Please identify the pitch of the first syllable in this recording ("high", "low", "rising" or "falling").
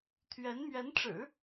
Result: rising